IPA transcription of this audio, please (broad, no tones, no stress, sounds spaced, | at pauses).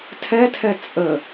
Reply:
tʰ ɛ tʰ ɛ t͡sʼ ə